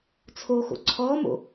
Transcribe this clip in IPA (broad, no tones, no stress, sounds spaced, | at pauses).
t͡sʰ o x o̰ ǀʰ ɔ m o̰